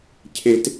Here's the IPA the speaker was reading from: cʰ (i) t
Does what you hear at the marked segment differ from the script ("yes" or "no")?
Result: yes